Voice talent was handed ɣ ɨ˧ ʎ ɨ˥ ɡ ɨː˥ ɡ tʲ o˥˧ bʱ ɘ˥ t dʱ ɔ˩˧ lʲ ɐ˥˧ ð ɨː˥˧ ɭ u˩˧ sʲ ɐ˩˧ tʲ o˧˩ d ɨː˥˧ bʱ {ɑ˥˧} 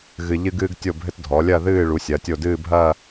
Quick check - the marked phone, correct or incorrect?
incorrect